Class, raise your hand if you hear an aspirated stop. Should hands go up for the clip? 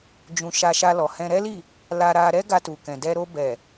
no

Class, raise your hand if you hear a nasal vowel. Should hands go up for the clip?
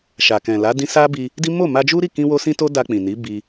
yes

